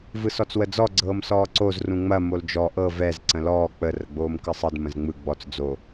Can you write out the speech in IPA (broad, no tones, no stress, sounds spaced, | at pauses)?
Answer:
v ɯ s ɔ t͡s w ə d͡z ɔ ɡ͡ǀ ɤː m s ɔː ǀ o z r ũ ŋ͡m ɐ m o l d͡ʒ ɔ ʔ ɤ v ɛ z ǀ ə̃ l ɔː k͡p ə r ə ɡ͡b oː m k ɯ sˤ ɯ d m ə̃ z ŋ͡m ɯ ɡ͡b ɔ t͡s d͡z o